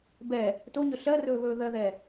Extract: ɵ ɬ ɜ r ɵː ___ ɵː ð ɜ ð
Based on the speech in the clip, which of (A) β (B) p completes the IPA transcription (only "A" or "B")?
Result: A